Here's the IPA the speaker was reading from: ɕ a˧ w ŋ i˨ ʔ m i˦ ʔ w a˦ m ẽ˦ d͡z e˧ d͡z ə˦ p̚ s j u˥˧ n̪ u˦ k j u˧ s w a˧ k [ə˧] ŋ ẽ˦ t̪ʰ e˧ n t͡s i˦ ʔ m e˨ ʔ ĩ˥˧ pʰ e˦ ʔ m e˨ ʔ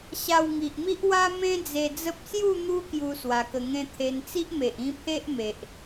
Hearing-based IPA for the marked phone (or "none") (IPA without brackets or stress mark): ə˧